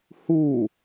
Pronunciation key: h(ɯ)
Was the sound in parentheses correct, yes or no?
no